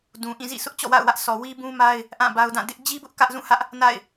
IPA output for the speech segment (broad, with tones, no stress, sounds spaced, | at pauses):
d ũ˨ ʔ ĩ˦˨ z ḭ˦˨ sʰ ʊ˦ ʔ t͡ɕ ɔ̰˦˨ w a̰˦˨ ʊ̯ w ä˦ ʔ sʰ ɔ˨ w i˦ b ũ˦ m a˦ ɪ̯ | ʔ ã˦˨ b a˦ ʊ̯ d ã˦˨ d ɪ˦ ʔ d͡ʑ i˦ b ʊ˦ ʔ k ä˦ ʔ z ũ˦˨ h ä˦ ʔ | n a̰˦˨ ɪ̯